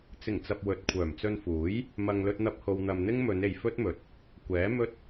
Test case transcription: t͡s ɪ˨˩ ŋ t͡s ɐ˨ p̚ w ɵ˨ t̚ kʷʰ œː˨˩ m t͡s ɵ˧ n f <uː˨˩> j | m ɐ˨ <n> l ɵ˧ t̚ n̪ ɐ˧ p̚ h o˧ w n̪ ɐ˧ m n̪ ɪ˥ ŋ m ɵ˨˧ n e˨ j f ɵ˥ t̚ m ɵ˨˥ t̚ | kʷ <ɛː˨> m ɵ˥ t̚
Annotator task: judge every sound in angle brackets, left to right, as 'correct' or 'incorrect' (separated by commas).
incorrect, incorrect, incorrect